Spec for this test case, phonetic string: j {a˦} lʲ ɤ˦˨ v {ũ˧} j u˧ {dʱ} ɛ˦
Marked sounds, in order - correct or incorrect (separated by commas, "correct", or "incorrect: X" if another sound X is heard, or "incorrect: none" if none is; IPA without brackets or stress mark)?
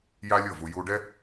correct, incorrect: u˧, incorrect: ɖ